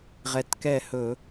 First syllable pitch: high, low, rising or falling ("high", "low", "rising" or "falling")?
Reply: rising